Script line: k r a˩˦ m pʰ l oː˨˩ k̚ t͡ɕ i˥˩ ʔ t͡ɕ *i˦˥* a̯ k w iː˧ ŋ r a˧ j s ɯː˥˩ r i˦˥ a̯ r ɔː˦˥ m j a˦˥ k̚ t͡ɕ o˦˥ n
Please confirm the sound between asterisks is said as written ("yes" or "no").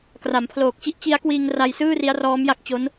yes